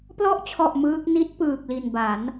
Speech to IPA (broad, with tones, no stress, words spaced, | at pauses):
plɔ˦˥ʔt͡ɕʰɔ˨˩ʔ mɯː˦˥k̚ ni˦˥t̚pɯː˨˩k̚ li˨˩nba˩˦n